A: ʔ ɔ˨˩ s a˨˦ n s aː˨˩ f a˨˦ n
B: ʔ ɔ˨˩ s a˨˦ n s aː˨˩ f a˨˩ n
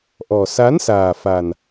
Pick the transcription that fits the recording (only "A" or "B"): B